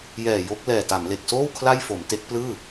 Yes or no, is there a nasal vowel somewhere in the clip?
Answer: no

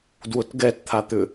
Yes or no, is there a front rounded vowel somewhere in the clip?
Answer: yes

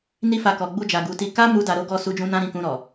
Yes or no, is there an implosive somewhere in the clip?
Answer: no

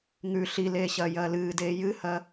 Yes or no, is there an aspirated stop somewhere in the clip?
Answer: no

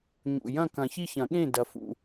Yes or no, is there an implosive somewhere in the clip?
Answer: yes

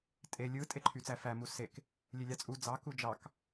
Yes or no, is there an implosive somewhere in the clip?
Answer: no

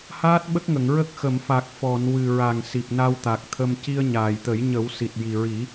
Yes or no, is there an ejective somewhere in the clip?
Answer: no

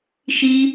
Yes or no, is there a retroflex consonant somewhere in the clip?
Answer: no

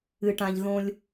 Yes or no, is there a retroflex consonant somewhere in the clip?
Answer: yes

